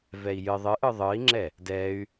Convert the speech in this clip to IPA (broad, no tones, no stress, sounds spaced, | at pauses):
v ɛ i̯ j ɨ ðˤ ɨ ʔ ɯ ðˤ ɯ i̯ ŋ͡ǁ ɛ | d ɛ y̯